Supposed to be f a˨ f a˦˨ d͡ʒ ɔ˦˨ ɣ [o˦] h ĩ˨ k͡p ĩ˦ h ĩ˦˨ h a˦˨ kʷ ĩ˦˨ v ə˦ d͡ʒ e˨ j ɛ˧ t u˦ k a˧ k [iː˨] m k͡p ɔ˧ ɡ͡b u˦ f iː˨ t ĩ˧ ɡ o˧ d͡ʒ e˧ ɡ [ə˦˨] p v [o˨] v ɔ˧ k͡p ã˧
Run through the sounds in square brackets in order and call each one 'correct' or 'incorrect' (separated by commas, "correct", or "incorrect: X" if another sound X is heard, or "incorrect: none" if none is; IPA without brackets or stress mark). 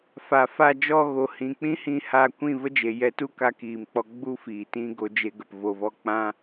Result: incorrect: o˨, correct, incorrect: ə˨, correct